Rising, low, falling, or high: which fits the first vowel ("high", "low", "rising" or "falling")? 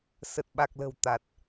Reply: low